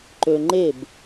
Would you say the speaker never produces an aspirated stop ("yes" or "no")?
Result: yes